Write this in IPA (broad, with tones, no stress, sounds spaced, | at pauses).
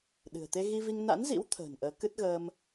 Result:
ɗ ɨ̤˨˩ ə̯ t̪ e˧ ɣ i˧ v i˧ ŋ n a̰˧˥ n z ḭ˧˥ w t̪ʰ ə̤ː˨˩ n ʔ əː˨˦ k ɨ˦˥ t̚ ɣ əː˧ m